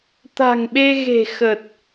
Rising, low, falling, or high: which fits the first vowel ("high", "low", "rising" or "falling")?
low